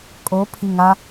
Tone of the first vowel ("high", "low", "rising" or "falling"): rising